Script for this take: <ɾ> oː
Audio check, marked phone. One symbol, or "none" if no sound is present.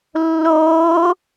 lː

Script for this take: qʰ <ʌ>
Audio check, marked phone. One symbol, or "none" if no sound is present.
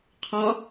ɒ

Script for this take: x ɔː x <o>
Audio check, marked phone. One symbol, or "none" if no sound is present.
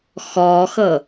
ɤ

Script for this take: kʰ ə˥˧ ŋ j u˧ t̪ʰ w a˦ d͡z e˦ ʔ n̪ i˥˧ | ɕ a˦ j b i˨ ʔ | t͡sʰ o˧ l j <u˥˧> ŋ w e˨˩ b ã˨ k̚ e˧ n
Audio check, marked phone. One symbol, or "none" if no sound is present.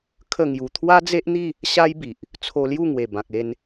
u˥˧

